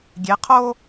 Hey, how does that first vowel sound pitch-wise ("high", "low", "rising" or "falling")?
rising